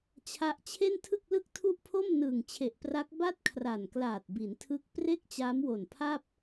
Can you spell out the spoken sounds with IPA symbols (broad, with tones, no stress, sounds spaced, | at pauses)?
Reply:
t͡ɕʰ a˦˥ ʔ t͡ɕʰ e˥˩ n tʰ ɯ˥˩ k̚ l ɯ˥˩ k̚ tʰ u˥˩ ʔ pʰ o˥˩ m n ɯː˨˩ ŋ t͡ɕʰ e˨˩ ʔ p r a˦˥ k̚ b a˥˩ t̚ kʰ r a˨˩ n k l aː˨˩ t̚ b i˩˦ n tʰ ɯ˦˥ k̚ p r e˥˩ k̚ t͡ɕ aː˦˥ m w o˨˩ n pʰ a˥˩ p̚